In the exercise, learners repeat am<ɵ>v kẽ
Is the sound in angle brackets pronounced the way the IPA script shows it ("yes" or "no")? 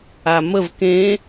no